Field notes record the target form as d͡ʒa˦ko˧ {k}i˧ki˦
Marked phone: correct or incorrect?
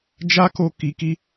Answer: correct